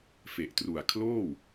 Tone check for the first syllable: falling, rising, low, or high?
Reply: low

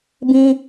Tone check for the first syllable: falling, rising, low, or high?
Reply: high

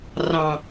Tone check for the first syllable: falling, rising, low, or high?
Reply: low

